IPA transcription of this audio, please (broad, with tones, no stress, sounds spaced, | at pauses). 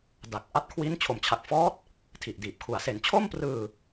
d a˨˩ k̚ ʔ a˦˥ t̚ kʰ w i˦˥ n t͡ɕʰ o˨˩ m t͡ɕʰ a˨˩ k̚ f ɔː˦˥ t̚ | tʰ i˨˩ ʔ d iː˨˩ p̚ kʰ u˨˩ a̯ s e˩˦ n t͡ɕʰ o˥˩ m p r ɯː˧